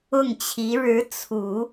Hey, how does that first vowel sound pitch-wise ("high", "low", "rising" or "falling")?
falling